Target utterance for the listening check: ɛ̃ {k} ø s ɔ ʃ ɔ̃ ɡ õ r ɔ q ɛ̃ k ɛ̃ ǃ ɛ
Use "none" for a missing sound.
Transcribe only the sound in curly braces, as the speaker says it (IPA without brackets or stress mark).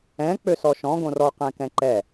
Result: k͡p